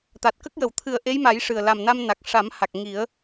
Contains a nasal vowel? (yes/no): no